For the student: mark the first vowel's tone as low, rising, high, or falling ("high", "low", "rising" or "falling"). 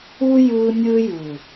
high